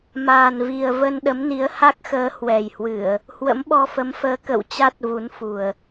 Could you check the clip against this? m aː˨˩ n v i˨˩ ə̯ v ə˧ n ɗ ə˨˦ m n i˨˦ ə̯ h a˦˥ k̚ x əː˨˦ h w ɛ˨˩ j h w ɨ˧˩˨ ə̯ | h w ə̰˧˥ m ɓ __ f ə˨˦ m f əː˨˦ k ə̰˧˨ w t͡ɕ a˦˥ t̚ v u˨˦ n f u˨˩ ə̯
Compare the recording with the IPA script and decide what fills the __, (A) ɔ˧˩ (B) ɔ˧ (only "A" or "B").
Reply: B